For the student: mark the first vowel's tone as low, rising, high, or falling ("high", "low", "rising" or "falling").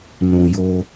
low